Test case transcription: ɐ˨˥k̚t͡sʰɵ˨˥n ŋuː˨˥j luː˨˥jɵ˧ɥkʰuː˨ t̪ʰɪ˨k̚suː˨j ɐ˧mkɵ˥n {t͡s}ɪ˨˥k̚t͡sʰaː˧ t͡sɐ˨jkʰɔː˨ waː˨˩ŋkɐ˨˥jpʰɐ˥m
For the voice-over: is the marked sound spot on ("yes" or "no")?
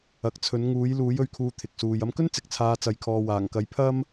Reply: yes